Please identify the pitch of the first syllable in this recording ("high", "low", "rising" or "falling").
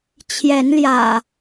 rising